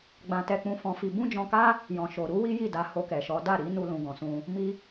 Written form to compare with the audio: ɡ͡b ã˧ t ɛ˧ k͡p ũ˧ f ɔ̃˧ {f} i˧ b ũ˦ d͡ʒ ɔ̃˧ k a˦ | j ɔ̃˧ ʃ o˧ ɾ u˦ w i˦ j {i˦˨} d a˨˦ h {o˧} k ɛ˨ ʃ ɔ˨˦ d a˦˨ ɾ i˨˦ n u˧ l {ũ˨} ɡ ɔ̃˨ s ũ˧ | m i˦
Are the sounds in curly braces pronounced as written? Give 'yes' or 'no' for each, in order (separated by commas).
yes, yes, yes, yes